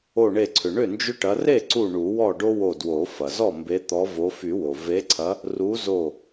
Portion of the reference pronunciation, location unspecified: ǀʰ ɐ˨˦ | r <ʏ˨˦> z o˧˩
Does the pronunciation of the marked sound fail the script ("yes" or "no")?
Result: yes